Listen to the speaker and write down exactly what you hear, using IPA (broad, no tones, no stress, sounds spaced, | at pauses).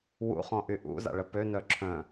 w ṵ χ ɔ̃ ʔ y ʔ ṵ z a̰ ɭ ə p ø n œ ǁʰ œ̃